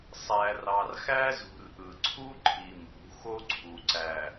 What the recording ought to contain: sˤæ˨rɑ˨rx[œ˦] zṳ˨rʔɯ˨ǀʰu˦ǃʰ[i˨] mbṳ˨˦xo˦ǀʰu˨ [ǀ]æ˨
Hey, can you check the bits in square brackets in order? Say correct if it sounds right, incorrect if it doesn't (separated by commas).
incorrect, correct, correct